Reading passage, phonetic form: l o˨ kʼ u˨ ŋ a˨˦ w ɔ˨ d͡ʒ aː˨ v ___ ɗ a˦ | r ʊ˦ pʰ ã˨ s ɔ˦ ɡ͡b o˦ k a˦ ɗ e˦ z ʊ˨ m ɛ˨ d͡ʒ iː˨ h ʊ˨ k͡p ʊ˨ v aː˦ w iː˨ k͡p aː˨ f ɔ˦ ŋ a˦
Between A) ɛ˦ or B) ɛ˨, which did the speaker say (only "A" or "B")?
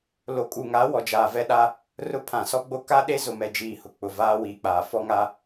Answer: A